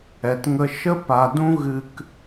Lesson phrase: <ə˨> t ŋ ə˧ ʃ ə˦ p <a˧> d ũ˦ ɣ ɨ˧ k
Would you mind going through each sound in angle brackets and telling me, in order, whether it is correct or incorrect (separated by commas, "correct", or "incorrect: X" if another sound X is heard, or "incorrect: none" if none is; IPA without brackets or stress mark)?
incorrect: ɛ˨, incorrect: a˨